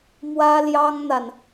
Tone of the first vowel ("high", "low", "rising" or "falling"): high